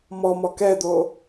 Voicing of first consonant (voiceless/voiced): voiced